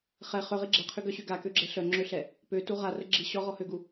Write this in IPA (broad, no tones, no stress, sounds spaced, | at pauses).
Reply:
χ ɛ χ ø ʁ i ɡ͡ǁ ɛ qʰ y ɡ œ ɕ y ɡ a k ø ɡ͡ǁ ɛ ɬ œ ŋ͡ǁ ø ɬ ɛ | p ø t u ʁ a r ə ɡ͡ǁ i ɕ ɔ ʁ ɔ h ø ɡ u